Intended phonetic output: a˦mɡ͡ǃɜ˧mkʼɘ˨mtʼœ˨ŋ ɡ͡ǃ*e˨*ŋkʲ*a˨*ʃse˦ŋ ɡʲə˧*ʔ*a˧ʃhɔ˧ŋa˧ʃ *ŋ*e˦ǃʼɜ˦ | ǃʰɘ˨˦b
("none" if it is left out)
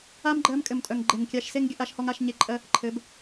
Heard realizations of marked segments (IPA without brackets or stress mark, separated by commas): e˨, a˧, ʔ, ɲ